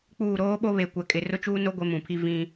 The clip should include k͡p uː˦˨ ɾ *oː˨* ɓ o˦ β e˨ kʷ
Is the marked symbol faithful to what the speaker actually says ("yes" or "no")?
no